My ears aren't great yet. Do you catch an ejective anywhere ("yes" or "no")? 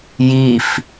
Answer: no